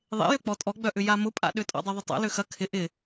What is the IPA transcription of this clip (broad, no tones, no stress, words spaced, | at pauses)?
ðˤḛjø k͡pɔtʼɔɡ͡bœʔʏ jamʊpʼa̰ɗʏ tʼɔ̰dˤøðˤʊtˤa̰ løxɐ kʰɪ ʔɪ